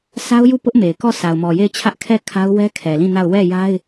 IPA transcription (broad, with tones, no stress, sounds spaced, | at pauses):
s a˦ ʊ̯ j u˦˨ p ʊ˦ ʔ m e˨ ɪ̯ k ɔ˦˨ s a˨ ʊ̯ m ɔ˨ j e˦˨ ɪ̯ t͡ɕʰ ä˦ ʔ kʰ ɛ˦˨ kʰ a˦ ʊ̯ w ɛ˦ kʰ ɛ˨ l ĩ˦˨ n a˦˨ ʊ̯ w ɛ˦˨ j a˦ ɪ̯